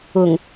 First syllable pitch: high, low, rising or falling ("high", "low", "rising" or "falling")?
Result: low